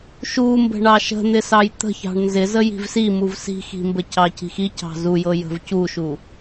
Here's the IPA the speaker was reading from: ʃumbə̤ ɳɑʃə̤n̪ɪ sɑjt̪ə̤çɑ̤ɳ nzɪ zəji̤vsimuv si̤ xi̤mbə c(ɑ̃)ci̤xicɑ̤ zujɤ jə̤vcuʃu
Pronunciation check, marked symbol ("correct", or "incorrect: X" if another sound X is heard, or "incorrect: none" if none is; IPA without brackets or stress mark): incorrect: ɑ